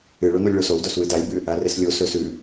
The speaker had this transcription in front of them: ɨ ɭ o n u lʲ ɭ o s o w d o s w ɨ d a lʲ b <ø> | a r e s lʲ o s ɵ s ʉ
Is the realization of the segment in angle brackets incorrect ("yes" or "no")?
yes